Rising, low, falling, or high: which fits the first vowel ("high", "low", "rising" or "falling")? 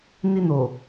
high